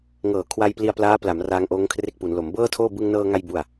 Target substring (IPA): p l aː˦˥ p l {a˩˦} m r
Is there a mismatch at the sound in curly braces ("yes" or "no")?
no